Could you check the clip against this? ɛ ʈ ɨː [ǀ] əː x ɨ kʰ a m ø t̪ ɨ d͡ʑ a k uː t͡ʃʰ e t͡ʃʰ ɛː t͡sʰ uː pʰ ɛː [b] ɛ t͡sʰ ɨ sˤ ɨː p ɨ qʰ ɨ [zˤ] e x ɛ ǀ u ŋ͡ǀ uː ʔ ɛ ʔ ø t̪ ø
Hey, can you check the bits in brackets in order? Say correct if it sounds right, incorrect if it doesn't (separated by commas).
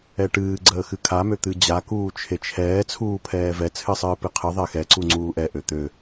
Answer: incorrect, incorrect, incorrect